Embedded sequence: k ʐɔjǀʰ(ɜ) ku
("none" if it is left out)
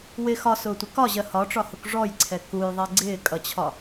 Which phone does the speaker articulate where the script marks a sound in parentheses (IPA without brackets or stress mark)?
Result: ɛ